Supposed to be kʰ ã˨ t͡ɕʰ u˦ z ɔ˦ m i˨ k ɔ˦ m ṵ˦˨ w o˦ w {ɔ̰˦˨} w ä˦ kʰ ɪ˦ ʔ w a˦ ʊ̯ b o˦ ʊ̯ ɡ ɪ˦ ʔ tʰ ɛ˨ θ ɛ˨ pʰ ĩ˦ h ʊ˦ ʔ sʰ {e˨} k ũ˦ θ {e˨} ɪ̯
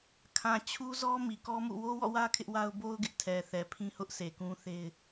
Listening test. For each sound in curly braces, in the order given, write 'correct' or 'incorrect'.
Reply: correct, correct, incorrect

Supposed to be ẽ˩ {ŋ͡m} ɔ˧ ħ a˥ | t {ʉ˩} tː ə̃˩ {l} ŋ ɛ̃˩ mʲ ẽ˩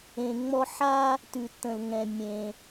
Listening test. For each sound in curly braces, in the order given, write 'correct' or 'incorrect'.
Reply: correct, correct, correct

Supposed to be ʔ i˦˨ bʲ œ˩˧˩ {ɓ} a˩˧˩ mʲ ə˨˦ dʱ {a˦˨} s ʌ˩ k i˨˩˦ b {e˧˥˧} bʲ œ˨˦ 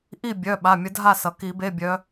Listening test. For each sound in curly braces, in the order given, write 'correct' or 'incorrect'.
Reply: correct, correct, correct

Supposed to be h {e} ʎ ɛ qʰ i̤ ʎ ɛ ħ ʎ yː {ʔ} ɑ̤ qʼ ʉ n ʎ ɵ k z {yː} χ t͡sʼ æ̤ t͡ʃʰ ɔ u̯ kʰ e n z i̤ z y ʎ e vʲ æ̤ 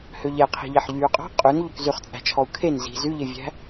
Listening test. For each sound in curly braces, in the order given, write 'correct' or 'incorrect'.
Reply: incorrect, incorrect, incorrect

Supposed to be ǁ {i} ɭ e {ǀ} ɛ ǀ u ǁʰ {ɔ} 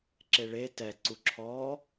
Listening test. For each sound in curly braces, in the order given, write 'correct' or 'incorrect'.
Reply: incorrect, incorrect, correct

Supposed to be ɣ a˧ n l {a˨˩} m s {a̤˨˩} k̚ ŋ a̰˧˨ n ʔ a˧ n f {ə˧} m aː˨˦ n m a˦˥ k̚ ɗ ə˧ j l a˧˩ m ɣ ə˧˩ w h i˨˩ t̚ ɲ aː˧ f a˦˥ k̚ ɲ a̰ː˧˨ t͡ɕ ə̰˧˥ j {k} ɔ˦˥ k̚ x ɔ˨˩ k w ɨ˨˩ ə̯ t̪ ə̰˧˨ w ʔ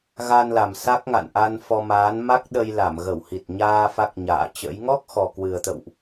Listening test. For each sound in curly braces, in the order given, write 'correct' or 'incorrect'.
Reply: correct, incorrect, incorrect, incorrect

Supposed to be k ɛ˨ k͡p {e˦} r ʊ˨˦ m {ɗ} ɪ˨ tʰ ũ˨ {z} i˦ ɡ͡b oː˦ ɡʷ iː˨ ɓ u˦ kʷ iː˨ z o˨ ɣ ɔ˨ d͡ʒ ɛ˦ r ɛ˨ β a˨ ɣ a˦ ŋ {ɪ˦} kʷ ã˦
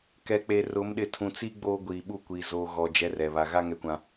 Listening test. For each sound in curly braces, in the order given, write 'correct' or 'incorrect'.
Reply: incorrect, correct, incorrect, incorrect

